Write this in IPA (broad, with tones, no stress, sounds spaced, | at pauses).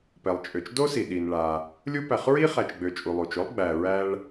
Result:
p ɛ˩ lˠ t͡ʃʼ ø˩ t͡ʃ d o˥ s i˩ ɗ i˩ n ɭ a˩ | lʲ u˦ p æ˨ χ ɹ i˥ χ æ˨ t͡ʃ ɡ͡b ø˨ t͡ʃʼ u˩ lˠ u˩ t͡ʃ o˥ lˠ ɡ͡b æ˨ ɹ æ˦ ɭ